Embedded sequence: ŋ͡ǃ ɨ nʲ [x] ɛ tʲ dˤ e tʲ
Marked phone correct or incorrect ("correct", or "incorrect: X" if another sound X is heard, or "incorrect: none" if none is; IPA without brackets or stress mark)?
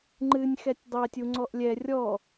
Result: correct